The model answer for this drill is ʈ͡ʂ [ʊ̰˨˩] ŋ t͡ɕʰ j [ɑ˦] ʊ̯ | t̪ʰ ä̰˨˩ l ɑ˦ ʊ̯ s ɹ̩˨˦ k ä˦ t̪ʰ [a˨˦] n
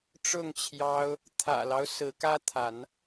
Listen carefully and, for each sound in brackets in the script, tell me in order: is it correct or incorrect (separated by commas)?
incorrect, correct, correct